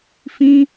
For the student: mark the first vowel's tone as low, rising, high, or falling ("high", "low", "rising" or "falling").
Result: high